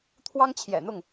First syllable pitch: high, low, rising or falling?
high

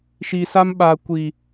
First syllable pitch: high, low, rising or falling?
low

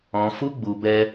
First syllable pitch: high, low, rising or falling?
low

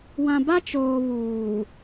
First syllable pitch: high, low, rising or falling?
low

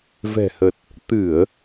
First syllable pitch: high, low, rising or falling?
low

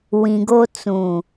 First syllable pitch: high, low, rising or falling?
low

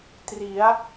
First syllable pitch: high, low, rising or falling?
rising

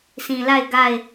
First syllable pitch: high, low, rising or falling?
low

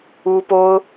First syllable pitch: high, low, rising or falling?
high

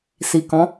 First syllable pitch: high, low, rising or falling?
low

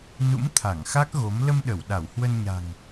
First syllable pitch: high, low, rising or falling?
rising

